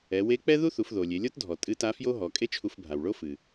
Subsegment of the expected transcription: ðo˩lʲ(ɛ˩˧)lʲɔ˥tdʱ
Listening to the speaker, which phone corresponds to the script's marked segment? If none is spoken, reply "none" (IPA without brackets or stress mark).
e˩˧